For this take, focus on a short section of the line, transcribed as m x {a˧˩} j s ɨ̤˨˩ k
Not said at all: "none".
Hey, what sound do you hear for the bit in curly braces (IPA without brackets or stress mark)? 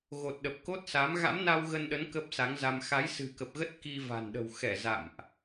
a˨˦